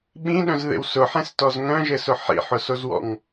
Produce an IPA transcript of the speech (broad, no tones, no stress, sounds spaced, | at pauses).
ɓ ĩ ɗ œ̃ z ð ḛ w s ʊ ħ ẽ s t ɔ z ŋ œ̃ ʒ ɘ s ʊ ħ ḭ ħ ʊ s o z w ɔ̰ ŋ